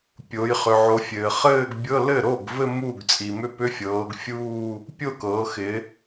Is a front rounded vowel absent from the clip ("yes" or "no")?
no